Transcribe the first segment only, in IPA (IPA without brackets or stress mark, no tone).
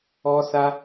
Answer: ɔ